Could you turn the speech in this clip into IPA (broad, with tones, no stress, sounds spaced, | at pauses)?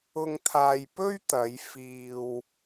ʊ˧ ŋ t̪ʰ aː˧ j p ɵ˥ ɥ t̪ ɐ˨˧ j f iː˧ w